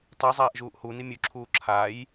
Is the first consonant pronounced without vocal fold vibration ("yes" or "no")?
yes